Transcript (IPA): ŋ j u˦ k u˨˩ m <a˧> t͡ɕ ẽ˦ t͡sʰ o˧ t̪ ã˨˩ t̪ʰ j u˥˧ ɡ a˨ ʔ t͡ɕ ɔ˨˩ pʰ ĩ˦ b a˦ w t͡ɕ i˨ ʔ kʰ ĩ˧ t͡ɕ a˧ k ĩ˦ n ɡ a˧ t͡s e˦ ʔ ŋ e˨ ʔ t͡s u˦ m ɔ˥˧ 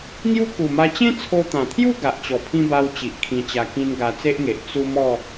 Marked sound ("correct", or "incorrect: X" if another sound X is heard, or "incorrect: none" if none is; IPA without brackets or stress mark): correct